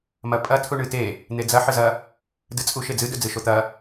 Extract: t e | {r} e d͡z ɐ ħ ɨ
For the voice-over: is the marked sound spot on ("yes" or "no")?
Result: no